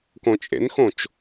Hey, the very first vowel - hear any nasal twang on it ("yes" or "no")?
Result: yes